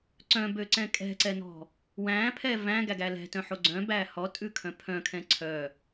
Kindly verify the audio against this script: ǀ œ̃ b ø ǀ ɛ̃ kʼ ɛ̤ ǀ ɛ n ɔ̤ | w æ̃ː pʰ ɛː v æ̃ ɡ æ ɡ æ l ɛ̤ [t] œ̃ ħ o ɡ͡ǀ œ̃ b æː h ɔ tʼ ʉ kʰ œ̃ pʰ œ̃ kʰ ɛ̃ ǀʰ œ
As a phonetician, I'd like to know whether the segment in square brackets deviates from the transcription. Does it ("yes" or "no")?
no